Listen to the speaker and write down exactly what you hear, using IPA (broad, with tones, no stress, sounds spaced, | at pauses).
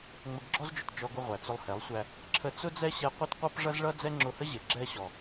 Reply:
ŋ͡m ə˧ ɡ ɡ͡ǁ ɔ˦ z d͡ʒ ʊ˨ t d͡ʒ ɔ˧ ɡ ʊ˧ ʁʷ æ˨ t͡s ʊ˧ lˠ h ɛ˨˦ lˠ sʷ æ˧ | ǁʰ ə˧ t͡s ʊ˦ d͡z ɛ˦ ɕ ɛ˧ qʷ ɛ˦ t qʷ ʌ˦ p ʐ ʌ˦ z ɭ ʌ˦ d͡z ɛ˦ ŋ͡ǁ ʊ˧ h ə˦ ʑ ɪ˨ ɡ͡ǁ ɛ˧ ɕ ɔ˨